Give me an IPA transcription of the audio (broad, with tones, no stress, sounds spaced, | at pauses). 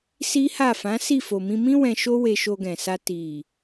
s i˦ h a˦˨ f ã˨˦ s i˦˨ f o˨ m ĩ˧ m ĩ˦ w ɛ̃˧ ʃ o˦ w e˧ ʃ o˧ ɡ ɛ̃˨ s a˧ t i˨